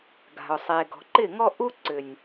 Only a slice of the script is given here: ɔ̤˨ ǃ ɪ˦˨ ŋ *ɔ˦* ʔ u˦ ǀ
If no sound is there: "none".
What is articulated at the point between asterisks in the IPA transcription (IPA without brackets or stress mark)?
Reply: ɔ˦